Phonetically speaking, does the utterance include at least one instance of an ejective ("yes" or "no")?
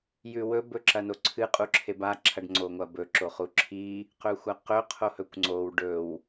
yes